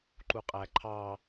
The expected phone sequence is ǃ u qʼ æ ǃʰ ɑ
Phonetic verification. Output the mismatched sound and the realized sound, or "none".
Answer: none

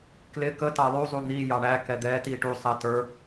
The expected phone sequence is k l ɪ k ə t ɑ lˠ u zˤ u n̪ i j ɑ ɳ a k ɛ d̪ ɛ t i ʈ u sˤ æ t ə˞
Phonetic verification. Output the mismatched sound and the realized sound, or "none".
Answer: a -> æ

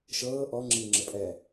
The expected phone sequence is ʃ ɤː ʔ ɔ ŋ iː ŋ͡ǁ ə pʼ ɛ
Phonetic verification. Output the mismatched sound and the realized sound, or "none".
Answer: ŋ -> ŋ͡ǁ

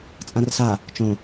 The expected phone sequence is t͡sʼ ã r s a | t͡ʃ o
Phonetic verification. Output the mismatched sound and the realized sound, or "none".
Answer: o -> õ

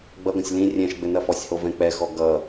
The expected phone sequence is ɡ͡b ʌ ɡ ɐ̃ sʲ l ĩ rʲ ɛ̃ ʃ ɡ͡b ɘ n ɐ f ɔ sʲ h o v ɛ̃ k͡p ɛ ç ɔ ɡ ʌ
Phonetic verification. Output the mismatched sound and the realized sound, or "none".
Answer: ç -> x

